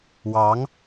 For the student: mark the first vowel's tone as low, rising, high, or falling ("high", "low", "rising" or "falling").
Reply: rising